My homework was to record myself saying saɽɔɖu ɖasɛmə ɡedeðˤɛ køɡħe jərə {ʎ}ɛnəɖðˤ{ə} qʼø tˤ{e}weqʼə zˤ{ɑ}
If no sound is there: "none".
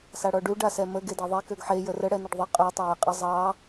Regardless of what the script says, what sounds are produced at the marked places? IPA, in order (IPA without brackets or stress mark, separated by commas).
ɽ, ɨ, ɘ, ɑ